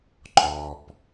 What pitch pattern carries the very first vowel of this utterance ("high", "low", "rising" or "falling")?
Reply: low